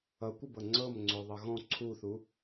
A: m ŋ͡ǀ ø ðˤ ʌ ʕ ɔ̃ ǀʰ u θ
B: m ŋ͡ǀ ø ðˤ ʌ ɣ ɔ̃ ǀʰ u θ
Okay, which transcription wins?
B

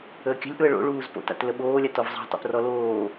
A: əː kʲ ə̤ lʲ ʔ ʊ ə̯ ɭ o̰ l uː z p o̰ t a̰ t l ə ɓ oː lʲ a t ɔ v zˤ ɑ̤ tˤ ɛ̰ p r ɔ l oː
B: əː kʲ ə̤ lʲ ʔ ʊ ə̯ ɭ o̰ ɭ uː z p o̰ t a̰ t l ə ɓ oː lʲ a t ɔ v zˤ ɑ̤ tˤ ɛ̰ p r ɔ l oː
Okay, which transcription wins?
B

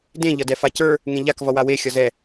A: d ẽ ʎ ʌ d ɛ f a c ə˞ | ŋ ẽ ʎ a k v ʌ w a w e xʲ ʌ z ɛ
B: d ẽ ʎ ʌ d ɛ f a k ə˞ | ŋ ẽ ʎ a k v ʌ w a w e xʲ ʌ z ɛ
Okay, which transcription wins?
A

